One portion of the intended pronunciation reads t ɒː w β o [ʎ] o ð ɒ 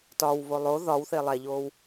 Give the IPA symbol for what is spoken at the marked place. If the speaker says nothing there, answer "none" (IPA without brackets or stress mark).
lˠ